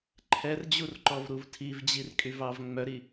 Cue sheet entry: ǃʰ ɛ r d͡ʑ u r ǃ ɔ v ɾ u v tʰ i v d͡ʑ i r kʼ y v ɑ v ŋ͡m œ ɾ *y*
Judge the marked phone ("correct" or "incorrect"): incorrect